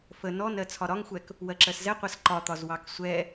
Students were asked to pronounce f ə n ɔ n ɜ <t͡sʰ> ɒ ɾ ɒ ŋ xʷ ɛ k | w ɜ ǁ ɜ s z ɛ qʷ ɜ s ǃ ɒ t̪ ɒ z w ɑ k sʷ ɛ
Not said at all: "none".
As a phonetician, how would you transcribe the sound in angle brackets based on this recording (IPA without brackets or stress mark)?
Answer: t͡sʰ